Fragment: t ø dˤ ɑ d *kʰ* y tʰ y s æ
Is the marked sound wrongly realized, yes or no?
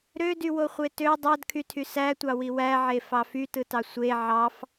no